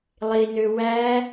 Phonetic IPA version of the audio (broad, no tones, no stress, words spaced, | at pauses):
lˠinø wæ